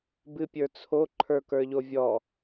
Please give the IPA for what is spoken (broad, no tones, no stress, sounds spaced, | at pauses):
b ɨ pʲ ə˞ t͡sʰ o ǃʰ ə˞ k ə˞ ʎ o vʲ ɔ